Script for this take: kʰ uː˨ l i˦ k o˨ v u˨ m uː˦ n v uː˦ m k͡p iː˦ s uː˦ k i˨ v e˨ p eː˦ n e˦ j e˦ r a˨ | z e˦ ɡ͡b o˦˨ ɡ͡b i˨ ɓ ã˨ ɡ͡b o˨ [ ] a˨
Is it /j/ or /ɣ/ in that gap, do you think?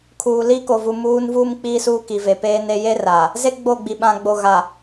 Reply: ɣ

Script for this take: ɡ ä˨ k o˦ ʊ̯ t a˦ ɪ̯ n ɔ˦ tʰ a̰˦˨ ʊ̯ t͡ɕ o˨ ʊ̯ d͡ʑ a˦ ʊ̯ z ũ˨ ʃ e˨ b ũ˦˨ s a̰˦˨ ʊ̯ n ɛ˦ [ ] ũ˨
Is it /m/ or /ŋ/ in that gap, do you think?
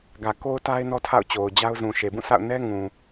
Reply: ŋ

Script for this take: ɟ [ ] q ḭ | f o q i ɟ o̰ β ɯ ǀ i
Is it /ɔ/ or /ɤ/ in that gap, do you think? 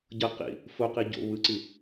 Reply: ɤ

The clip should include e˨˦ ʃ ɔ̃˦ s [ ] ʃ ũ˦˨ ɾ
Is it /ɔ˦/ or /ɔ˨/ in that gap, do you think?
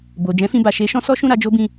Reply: ɔ˦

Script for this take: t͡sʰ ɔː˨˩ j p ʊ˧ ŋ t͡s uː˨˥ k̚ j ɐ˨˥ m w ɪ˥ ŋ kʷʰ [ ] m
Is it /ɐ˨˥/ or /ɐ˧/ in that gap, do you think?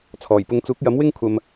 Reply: ɐ˧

